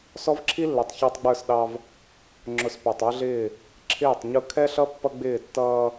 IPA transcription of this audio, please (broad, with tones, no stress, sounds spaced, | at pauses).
s ɔ˦ v ǁʰ i˦ lː ɛ˨ tˤ ç ɑ˦ tˤ ɡ͡b ə˞˦˨ s ɗ ɑ˦ v | ŋ͡ǁ ʊ˨ s p æ˨ tˤ ə˞˦ ɮ ɪː˦˨ | ǁʰ ɪː˦˨ tˤ ɲ ʊ˦ kʰ ɛ˦ ɬ ʌ˦ pː ʌ˦ ɡ͡b ɪː˦˨ tː ʌː˦